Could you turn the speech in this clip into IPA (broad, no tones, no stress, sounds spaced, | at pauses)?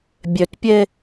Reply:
bʲ ø t pʲ e